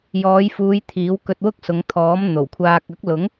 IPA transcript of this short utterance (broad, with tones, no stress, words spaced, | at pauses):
jɔː˨˧jfuː˨˧j t̪ʰiː˨˥w kɵ˧t̚wʊ˥k̚sʊ˨˧ŋt̪ʰɔː˨˥m n̪o˨˩wkʷʰaː˧k̚ ɐ˨˥k̚lʊ˨˥ŋ